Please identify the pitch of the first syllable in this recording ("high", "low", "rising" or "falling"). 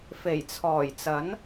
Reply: low